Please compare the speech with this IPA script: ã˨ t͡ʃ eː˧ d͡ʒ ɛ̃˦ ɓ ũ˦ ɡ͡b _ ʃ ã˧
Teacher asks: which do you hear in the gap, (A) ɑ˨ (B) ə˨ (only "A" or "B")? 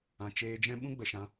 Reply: B